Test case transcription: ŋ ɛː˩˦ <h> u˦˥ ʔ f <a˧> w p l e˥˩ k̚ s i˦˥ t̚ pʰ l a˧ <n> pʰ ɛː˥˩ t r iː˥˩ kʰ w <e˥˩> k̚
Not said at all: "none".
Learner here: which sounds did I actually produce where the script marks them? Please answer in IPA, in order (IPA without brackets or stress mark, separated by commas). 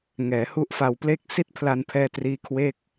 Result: h, a˧, n, e˥˩